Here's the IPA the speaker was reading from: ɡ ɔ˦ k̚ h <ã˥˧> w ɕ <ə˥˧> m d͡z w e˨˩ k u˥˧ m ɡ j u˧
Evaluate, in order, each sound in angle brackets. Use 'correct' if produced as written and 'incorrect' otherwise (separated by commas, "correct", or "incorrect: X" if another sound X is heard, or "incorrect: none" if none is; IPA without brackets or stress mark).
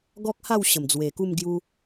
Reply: incorrect: a˥˧, incorrect: ə˨˩